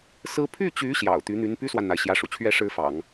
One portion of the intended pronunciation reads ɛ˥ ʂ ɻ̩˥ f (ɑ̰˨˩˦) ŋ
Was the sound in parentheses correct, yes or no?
yes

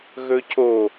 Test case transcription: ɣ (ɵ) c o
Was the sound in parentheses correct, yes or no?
yes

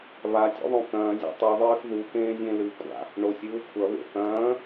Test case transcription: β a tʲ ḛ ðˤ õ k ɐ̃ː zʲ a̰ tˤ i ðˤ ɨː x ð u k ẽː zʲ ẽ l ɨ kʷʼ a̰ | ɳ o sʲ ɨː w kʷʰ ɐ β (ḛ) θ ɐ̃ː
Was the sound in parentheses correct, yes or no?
yes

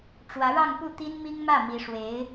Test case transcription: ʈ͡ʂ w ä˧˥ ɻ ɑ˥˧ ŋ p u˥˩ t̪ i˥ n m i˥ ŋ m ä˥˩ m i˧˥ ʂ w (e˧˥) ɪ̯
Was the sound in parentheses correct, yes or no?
yes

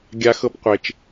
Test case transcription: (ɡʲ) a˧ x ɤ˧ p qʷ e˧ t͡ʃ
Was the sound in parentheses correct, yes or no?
yes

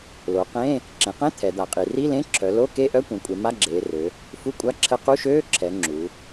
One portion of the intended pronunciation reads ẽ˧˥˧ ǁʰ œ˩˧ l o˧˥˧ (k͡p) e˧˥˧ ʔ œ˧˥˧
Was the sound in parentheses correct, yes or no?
no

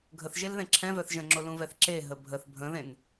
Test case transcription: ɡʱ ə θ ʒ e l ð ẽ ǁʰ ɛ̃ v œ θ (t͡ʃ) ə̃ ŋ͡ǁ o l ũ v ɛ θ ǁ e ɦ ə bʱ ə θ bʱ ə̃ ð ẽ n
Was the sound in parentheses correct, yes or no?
no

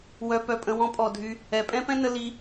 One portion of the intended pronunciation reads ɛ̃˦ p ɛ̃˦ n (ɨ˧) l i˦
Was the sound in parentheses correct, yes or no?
no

